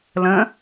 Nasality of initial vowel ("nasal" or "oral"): nasal